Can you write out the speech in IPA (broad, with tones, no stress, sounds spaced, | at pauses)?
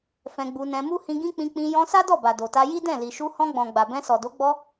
f ɛ̃˧ ɡ͡b u˧ n ɛ̃˧ m u˦ h ĩ˧ ɡ ĩ˦ k͡p ĩ˧ k͡p ĩ˧ j ɔ̃˧ s a˦ d ɔ˦˨ b a˨ d o˨ t a˧ j i˦ d ɛ̃˦˨ l i˨ ʃ u˧ h ɔ̃˧ ɡ͡b ɔ̃˨ ɡ͡b a˨ b ɛ̃˧ s ɔ˨ d o˨˦ ɡ͡b ɔ˧